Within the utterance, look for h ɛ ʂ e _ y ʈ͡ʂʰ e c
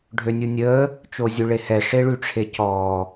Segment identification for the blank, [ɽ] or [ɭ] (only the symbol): ɭ